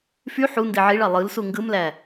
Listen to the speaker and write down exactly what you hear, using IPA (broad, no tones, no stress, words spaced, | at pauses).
fy ħu ndiʕiɭɑ lˠɯlsu ŋɡɯmlæ